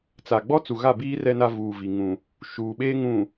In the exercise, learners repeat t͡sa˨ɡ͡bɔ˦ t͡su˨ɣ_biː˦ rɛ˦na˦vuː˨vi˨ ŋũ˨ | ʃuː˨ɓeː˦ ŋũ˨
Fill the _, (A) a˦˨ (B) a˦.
A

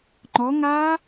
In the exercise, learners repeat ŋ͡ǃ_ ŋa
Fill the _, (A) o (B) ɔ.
B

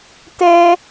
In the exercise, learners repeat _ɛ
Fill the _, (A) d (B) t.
B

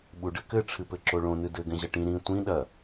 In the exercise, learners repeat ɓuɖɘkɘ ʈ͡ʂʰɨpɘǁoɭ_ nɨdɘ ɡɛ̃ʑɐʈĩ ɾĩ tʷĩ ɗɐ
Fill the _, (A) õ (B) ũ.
A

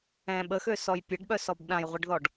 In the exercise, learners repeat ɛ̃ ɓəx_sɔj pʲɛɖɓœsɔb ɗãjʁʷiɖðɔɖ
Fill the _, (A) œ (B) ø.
B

